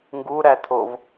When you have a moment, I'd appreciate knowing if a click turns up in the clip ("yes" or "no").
no